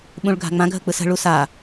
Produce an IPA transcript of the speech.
ɓ ũ ɭ ɡʱ a̤ ŋ͡m ã ɡʱ ə k͡p ɯ s ə̤ ɭ u s a

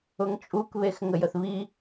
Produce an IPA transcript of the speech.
ʊ ŋ t͡ʃʼ u k β e x ŋ ə j ə θ β i

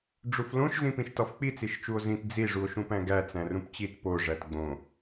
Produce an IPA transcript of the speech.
ɖ͡ʐ u f l õ ʃ z ĩ p ĩ ʃ t ɒ f k͡p i t͡s i ʃ t͡ʃ u o̯ z ĩ t d͡z i ʐ u o̯ ʃ ũ p æ̃ ɡ æ t͡s æ̃ r ũ p t͡ɕ i t p o ʐ æ t ɡ͡b õ

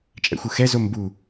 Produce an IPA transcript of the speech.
t͡ʃʼ ɛ̰ xʷ ɯ x ɛ z o m b u

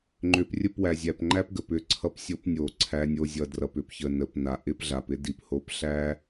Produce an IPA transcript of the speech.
ŋ͡ǃ ʏ˨ p rʲ ə˦˨ p w æ˨ zʲ æ˨ p ŋ͡ǃ æ˦ p ɡ ə˨ p ʏ˦ ǀʰ ʌ˦ p sʲ o˦ p nʲ o˨ ǀʰ æ˦ nʲ o˦ zʲ ʌ˨ d r ʌ˨ p ʏ˨ p ç ə˨ n ə˨ p n a˨ ʔ ɪ˦ p ɮ a˨ p ɪ˦ d i˨ p h o˦ p ɬ æ˦

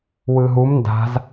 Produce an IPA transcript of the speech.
w ɯ ɦ u m n d a̤ z

